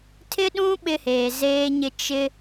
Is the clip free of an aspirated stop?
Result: no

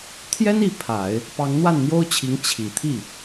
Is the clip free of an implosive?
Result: yes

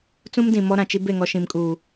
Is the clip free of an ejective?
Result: no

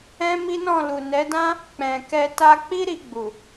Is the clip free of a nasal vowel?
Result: no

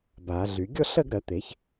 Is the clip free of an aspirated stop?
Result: yes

